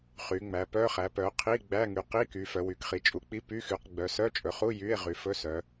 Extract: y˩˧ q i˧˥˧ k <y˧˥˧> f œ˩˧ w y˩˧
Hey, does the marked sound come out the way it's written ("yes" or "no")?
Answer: no